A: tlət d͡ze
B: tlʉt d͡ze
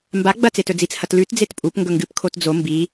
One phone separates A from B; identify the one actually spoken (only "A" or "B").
B